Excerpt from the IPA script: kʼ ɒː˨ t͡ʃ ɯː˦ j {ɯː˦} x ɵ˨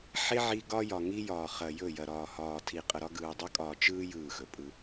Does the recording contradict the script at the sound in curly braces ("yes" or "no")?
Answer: yes